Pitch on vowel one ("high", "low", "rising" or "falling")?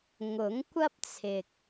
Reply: rising